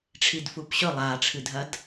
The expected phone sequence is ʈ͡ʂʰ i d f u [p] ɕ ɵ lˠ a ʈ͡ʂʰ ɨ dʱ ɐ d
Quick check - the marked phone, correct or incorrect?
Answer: correct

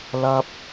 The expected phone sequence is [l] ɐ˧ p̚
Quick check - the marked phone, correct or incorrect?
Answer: correct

